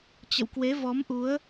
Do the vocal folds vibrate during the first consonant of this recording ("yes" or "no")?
no